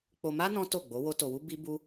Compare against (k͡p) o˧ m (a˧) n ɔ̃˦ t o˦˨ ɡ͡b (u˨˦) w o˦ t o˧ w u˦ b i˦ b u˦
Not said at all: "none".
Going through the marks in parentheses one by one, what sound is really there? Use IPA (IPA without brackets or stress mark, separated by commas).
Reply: k͡p, a˦, o˨˦